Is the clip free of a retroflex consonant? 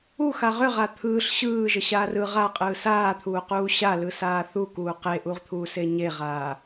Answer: yes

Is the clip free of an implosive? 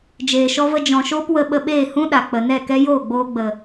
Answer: no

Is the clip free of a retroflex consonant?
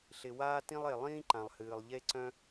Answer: yes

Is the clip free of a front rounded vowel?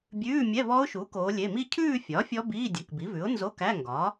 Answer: yes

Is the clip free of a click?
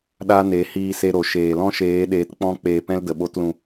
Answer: yes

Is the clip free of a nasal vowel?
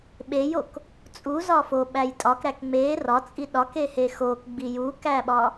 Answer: yes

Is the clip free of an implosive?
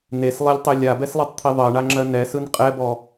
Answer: yes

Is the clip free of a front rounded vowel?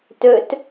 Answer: no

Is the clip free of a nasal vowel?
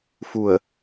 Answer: yes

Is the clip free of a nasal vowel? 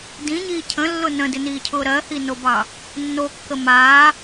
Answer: no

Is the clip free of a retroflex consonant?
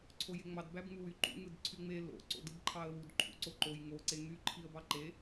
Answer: yes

